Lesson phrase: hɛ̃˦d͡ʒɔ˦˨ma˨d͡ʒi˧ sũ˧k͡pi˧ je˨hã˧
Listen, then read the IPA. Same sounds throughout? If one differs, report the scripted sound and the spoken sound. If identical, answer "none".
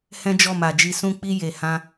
none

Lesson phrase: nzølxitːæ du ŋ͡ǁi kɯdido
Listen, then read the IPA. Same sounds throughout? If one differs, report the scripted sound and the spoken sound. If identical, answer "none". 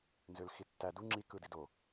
none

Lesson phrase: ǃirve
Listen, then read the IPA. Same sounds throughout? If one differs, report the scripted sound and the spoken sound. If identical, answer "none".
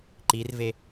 none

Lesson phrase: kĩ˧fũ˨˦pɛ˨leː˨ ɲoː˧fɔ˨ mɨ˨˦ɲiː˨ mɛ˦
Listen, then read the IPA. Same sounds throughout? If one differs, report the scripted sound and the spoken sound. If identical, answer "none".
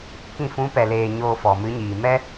none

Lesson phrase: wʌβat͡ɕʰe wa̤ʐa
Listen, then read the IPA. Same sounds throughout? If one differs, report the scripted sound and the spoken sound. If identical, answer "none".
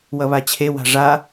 none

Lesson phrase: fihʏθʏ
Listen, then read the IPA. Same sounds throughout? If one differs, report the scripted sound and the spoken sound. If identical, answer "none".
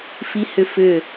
θ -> f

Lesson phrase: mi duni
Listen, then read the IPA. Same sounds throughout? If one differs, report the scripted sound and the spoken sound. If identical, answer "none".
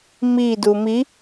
n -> m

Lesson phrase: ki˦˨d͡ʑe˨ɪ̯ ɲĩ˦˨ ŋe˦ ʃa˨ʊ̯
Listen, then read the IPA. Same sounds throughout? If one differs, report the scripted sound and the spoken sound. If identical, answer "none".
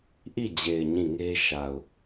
k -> ʔ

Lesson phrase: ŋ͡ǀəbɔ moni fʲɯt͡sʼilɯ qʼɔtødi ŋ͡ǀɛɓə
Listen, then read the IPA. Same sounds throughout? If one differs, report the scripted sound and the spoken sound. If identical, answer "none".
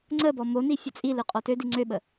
ɛ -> ø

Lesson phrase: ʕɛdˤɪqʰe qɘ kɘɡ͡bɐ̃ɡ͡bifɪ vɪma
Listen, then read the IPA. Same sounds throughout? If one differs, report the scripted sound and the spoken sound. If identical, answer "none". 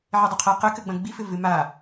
none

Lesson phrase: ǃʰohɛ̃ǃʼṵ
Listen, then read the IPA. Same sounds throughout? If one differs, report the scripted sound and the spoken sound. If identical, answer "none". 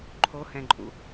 none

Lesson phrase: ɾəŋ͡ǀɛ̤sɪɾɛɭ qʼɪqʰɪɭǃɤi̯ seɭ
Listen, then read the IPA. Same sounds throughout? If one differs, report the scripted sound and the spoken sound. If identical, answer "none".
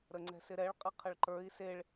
ɤ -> ə˞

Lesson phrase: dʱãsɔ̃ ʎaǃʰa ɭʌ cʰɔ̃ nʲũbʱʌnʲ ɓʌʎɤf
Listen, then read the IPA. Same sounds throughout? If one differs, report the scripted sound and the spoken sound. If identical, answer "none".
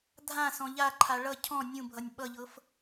none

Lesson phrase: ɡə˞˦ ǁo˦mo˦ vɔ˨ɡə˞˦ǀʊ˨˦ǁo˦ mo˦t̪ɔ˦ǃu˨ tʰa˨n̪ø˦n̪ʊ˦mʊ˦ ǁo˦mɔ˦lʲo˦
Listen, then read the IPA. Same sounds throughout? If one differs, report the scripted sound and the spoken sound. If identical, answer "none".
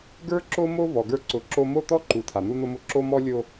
ø˦ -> u˦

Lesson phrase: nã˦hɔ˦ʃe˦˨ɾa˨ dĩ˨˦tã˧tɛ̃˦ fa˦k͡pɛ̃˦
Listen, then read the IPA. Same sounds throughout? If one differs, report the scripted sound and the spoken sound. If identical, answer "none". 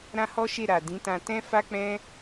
n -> ɾ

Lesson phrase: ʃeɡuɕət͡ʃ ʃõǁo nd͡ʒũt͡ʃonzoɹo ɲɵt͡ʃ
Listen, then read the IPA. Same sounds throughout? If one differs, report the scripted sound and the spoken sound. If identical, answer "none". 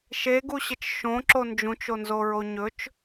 none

